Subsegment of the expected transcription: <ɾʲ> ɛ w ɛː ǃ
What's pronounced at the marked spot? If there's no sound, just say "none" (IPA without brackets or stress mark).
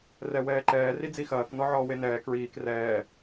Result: r